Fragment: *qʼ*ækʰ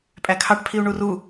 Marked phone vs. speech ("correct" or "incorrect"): incorrect